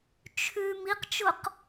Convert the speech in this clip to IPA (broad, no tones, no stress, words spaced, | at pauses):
t͡ʃʰʉ miqt͡ʃʊq